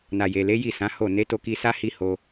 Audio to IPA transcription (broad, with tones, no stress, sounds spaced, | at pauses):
n a˨ j e˨ l e˨˦ j i˦˨ s ã˨˦ h o˦˨ n e˨˦ t o˧ k i˧ s a˦ h i˦ h o˧